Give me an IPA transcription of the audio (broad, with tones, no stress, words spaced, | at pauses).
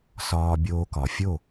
sɒː˧ bʲoː˧kɒ˨ fʲo˦˨